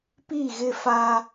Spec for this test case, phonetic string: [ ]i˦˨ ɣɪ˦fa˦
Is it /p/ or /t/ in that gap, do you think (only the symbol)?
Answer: p